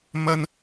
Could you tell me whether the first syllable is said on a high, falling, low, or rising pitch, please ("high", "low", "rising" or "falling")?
high